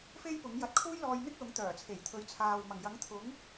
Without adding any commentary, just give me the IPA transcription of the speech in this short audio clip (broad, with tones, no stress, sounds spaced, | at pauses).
f e˥ j p ʊ˨˥ ŋ j ɐ˧ t̚ kʰ uː˥ j l ɔː˧ j n̪ ɪ˥ k̚ l ʊ˨˥ ŋ t̪ œː˨˩ t͡sʰ e˨˩ j t̪ʰ ɵ˨˧ ɥ t͡sʰ aː˨ w m ɐ˨˩ ŋ j ɐ˨˥ ŋ t̪ʰ ʊ˨˥ ŋ